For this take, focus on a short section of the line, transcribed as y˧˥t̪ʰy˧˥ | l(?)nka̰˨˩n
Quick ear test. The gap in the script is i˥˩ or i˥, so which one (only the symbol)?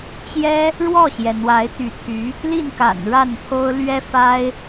i˥˩